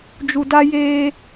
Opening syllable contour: low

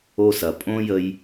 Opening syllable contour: high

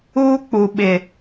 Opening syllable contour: high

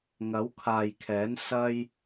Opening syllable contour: rising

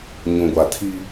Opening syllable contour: low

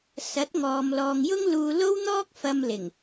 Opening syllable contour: rising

